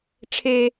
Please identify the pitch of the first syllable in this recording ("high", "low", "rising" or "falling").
high